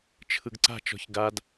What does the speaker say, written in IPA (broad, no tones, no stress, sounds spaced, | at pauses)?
t͡ʃʰ ɯ ɡ ǀ a̤ t͡ʃ ɔ̤ ç ɡ a d